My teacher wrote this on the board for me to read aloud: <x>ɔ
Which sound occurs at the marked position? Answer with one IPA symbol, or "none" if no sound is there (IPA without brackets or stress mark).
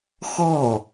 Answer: x